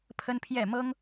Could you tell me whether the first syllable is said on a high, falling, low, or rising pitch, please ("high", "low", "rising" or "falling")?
high